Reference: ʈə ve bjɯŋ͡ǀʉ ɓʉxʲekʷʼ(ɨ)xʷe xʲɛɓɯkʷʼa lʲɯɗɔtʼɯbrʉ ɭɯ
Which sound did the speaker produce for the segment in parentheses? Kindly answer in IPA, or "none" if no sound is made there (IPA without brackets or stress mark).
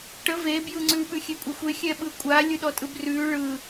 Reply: ɛ